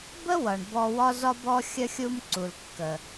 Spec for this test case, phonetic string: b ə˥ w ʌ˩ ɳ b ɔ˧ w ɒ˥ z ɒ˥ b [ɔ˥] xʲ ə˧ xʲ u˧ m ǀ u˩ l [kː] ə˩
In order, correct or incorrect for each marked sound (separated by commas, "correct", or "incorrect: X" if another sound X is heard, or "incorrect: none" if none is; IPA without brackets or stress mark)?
correct, correct